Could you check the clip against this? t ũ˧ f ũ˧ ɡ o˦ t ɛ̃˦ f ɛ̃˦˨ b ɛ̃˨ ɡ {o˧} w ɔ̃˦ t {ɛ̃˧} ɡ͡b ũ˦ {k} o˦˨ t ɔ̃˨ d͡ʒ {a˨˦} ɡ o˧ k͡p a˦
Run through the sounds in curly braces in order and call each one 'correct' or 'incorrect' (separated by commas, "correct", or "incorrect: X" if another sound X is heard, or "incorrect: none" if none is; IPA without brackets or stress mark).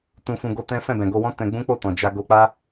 correct, correct, incorrect: k͡p, incorrect: a˧